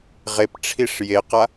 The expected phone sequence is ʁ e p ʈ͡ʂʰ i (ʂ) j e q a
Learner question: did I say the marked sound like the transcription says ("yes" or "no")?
yes